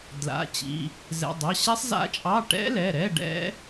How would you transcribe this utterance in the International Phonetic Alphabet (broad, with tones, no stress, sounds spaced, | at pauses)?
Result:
d l a̰˩˧˩ t͡ɕ ḭ˩˧˩ | z ɛ̰˩˧˩ dˤ ɑ˩˧˩ ɕ ɛ˦˥ sˤ z a̰˦˥ t͡ʃʼ ɑ˧˥˧ ʈ ɛ̰˦˥ l ɛ˩˧˩ ɾ ɛ˧˥˧ ɖ ɛ̰˦˥